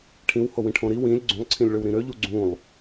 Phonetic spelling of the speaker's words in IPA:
ʈʰĩw howĩʈʰõɾi wĩlʲ ɡ͡ǀũlˠǀʰĩlʲɭøwɾĩ ɾøʎu ɡ͡ǀũlˠ

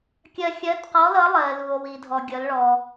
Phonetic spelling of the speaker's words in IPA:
kʲɜ˧xʲɜ˧˥tqɔ˧˥lʌ˧˥ lˠɜ˧lu˧o̯wi˧dʱɔ˧ ɡʲʌ˧˥lɭɔ˧

